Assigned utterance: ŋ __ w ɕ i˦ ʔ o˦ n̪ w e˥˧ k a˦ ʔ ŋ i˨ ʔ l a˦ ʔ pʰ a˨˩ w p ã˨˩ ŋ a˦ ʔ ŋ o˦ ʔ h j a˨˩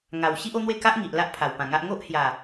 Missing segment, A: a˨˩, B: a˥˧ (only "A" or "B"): A